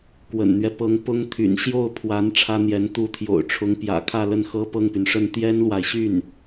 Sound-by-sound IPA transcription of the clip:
kwə̰˨˩nn̪ɥɛ˦ pɤ˧˥ŋ pʊ˥ŋ t̪ʰy̰˨˩nɕjo˥˩ʊ̯pʰwa˧˥n ʈ͡ʂʰä˥n̪jɛ˧˥n t̪u˧˥t̪ʰjo̰˨˩ʊ̯ʈ͡ʂʰʊ˧˥ŋ pjä̰˨˩kʰä˥˧lə˥˩nxɤ˥ pɤ˥˩ŋpy˩nʂə˥˩n t̪jɛ˥nlwa˨ɪ̯ɕy˥˩n

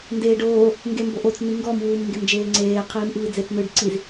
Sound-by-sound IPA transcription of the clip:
ndeːɖoː | ŋɡemboʔot͡s n̪iŋɡɔm wuːmŋɡemd͡ʒeːŋ͡ǀeː qʰiːmʔɯːd͡zet͡s nɯɖ ǀiz

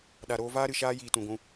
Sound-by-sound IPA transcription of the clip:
ɗa˨ɾoː˧ vaː˦ɾɨ˨ ʃaː˦jiː˨tũ˨ɡʷũ˧

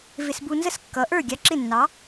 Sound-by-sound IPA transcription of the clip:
vɪ˧sbu˧nzə˥s kːʌ˩˥ʔə˞˥˩ ɡʲɑ˧ǁɪ˥˩nːɑ˩˥

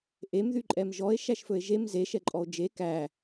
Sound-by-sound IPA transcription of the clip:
ʔemðy ǃʼɛmʒɔe̯ ʃæʃfɵe̯ʒem ze ʃɛǃʼɔo̯d͡ʒe kæ

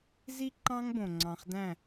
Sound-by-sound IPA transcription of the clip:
zi˥ǃɑ̃˥ŋbõ˧ŋ͡ǀɑ̃˧χ dæ̃˥˧

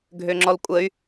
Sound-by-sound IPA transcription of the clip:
ɡʱøŋ͡ǁɔlkʷʼəy̯

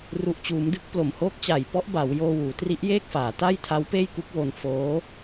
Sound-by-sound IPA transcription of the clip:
ru˨˩ʔt͡ɕuː˩˦mdɯ˥˩k̚ plo˨˩mhoː˦˥k̚t͡ɕa˨˩jpɔ˦˥ʔ ba˩˦wjoː˧ wuː˩˦tri˦˥ʔjeː˥˩k̚faː˩˦ ta˥˩j tʰa˦˥wpeː˥˩j ku˦˥k̚wo˧n foː˦˥

